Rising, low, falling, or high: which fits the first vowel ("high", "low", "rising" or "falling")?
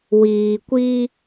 low